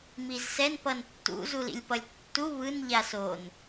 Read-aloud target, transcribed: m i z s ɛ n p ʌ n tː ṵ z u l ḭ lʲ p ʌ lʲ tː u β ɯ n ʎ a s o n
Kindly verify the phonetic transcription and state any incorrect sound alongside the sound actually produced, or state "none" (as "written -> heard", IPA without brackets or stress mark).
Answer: none